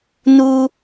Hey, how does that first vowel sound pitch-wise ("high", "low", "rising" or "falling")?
high